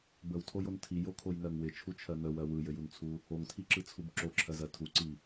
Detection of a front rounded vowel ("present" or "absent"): absent